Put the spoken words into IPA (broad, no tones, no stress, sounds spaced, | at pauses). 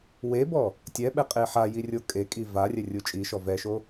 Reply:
w e b ɔ | tʲ ɛ ɓ ɛ qʼ e ħ a j i rʲ o kʼ e kʼ i v a rʲ ɛ rʲ u t͡ʃʼ i ʃ ɔ v ɛ ʃ o